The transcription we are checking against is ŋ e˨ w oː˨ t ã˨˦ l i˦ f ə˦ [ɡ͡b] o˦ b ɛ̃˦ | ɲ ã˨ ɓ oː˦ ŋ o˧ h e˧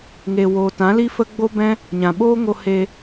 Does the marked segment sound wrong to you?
no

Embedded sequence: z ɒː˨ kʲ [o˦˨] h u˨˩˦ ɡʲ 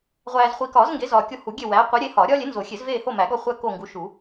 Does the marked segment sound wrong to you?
no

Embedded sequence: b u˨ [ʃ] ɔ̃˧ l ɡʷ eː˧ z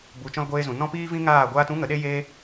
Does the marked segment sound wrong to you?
yes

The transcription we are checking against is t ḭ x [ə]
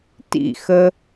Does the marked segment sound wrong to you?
no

